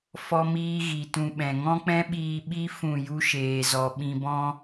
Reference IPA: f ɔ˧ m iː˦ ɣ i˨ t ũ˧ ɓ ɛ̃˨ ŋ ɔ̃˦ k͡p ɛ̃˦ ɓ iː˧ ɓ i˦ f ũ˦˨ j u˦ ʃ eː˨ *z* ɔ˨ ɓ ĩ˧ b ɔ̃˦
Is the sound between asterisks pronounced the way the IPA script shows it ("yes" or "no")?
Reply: yes